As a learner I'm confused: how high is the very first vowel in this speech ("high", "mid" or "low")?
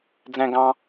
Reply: mid